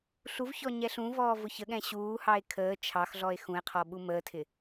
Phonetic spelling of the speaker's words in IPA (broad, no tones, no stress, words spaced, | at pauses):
ɬuvçɔ ɲɛɬũvɔː vʊçəɠɛ̃ ɕuːhɑe̯ kʰəː t͡ʃʰɑxɮɔe̯ xũe̯qʰɔ ɓuməːtʰɪ